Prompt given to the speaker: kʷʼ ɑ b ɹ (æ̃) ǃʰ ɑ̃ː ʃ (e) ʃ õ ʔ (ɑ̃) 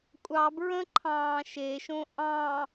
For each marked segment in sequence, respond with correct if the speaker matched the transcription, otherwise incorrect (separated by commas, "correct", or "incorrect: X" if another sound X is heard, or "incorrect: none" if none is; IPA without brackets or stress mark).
incorrect: ə̃, correct, correct